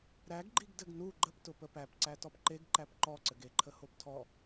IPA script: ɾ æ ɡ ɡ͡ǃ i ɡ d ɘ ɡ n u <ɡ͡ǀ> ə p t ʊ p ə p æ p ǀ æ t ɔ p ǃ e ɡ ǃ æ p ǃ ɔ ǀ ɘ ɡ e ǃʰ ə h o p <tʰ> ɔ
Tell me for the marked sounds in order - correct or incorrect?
incorrect, correct

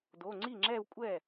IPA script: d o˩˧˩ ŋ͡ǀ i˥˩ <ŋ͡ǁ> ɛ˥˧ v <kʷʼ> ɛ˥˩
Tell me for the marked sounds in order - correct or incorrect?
correct, correct

